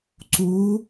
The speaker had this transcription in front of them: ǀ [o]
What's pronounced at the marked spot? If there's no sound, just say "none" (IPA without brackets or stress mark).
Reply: u